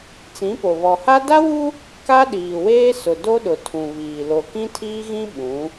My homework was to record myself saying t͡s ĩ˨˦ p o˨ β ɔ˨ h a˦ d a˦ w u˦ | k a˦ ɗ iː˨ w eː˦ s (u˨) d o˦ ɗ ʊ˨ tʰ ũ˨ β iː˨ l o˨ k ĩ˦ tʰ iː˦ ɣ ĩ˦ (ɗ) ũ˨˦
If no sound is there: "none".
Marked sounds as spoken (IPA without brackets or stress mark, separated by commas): ʊ˨, ɓ